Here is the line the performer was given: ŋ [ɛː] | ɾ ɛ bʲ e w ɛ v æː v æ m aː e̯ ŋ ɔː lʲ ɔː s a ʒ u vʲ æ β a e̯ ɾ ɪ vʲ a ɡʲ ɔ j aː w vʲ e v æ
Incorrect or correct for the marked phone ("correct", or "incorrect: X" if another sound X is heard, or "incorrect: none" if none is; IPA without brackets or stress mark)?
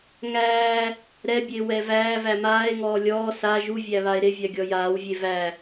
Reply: incorrect: æː